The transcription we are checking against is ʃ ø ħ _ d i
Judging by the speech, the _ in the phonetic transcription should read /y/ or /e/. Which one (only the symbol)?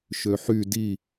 y